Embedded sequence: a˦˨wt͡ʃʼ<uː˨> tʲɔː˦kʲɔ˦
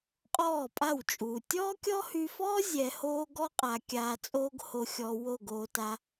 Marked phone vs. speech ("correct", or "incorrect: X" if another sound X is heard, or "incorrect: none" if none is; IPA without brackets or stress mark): correct